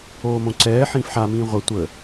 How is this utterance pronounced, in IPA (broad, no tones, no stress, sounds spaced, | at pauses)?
oː m õ ǀ ɛː ħ ĩː f ħ a m ĩː ʁʷ ə tʷ ə